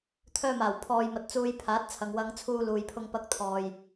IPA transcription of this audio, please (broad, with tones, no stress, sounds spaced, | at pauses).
t̪ʰ œː˧ m aː˨˩ w pʰ ɔː˨ j m ɐ˨ t̚ t͡s uː˧ j pʰ aː˨˥ t̚ t͡sʰ ɐ˨ ŋ w ɐ˥ ŋ t͡sʰ uː˥ l uː˨ j pʰ ʊ˧ ŋ p ɐ˧ k̚ t̪ʰ ɔː˨ j